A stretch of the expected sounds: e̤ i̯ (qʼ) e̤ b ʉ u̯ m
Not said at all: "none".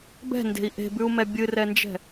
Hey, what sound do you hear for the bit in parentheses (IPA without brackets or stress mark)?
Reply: ʔ